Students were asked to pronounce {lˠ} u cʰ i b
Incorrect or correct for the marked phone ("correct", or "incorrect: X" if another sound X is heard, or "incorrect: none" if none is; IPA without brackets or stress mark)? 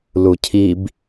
incorrect: l